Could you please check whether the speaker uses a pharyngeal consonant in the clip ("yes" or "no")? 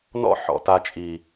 yes